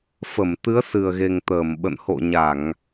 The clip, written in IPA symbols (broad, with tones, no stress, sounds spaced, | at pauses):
f ə˧˩ m t̪ ɨ˨˦ ə̯ s ɨ˨˩ ə̯ ɣ e˨˩ ŋ t̪ əː˧˩ m ɓ ə̰˧˨ n h o̰˧˨ ɲ a˧˩˨ ŋ